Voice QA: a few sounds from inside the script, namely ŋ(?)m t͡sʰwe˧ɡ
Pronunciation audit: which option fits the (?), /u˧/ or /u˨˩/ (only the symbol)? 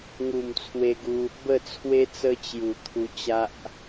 u˨˩